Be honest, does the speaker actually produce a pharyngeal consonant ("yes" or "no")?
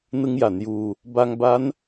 no